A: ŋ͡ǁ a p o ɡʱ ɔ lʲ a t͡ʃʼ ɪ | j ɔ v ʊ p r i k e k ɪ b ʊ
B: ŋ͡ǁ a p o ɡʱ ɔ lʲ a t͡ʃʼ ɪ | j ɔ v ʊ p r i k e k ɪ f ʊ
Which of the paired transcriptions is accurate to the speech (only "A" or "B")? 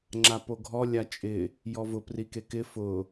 B